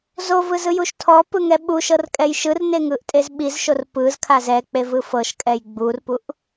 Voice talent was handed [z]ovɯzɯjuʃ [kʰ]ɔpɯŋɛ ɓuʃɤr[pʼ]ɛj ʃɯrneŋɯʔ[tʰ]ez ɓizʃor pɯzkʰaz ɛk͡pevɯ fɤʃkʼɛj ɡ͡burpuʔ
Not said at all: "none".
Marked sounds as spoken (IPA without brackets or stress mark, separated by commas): z, tʰ, kʼ, tʼ